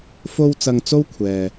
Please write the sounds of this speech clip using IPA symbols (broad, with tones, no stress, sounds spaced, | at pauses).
f o˥ w t͡s ɐ˧ ŋ t͡s o˥ w kʷʰ ɛː˨